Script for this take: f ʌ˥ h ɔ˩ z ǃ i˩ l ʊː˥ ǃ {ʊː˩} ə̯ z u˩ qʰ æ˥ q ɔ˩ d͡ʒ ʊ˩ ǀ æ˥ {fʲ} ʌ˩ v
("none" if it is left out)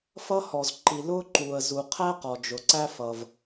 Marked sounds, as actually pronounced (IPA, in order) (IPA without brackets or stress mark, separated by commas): uː˩, f